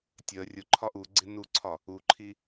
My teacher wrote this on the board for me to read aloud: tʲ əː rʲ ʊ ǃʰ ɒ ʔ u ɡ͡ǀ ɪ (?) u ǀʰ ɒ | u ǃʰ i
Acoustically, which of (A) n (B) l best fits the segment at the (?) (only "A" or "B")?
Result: A